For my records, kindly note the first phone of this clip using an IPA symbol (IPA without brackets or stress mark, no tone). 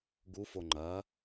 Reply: ɡ